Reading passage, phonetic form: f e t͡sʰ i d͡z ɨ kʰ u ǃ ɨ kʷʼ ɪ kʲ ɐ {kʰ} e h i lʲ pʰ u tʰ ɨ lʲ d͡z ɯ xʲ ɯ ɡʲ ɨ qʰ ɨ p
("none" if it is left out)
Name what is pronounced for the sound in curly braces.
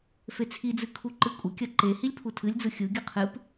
ǃ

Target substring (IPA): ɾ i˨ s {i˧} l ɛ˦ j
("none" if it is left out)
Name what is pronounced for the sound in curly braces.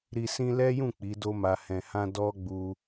ĩ˧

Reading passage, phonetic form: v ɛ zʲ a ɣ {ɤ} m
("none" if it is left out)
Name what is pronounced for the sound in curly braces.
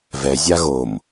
o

